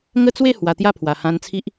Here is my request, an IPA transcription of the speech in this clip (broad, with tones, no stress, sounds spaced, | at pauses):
ŋ ə˥˧ t͡s w e˥˧ h w a˨˩ t̪ j a˥˧ pʰ w a˨˩ h ã˧ n t͡sʰ i˦ ʔ